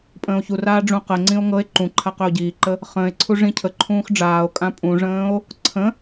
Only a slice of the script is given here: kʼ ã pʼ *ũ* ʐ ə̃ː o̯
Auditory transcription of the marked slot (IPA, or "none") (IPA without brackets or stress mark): ũ